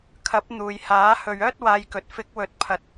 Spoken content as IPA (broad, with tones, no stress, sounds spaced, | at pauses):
kʰ ɐ˨˥ p̚ n̪ uː˨ j h aː˨˥ h ɵ˨ ɥ œː˥ t̚ w aː˧ j k ɵ˨ t̚ f ɪ˨˥ k̚ w ɵ˨ t̚ pʰ ɐ˨ t̚